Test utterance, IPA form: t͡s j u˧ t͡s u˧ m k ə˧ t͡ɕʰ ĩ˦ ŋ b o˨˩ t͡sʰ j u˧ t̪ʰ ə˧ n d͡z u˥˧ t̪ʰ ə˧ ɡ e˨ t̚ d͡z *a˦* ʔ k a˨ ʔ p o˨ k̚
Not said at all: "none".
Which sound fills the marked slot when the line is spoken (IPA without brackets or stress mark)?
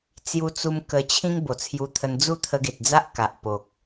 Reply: a˦